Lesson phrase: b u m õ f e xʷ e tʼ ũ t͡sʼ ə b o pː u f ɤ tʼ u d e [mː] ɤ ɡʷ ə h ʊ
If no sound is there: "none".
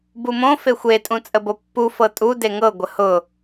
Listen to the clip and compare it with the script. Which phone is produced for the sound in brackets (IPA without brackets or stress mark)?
ŋ